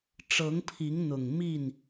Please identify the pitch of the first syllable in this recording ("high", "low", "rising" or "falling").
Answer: rising